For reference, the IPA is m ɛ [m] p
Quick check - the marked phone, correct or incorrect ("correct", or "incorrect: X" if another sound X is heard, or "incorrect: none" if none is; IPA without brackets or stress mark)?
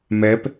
incorrect: none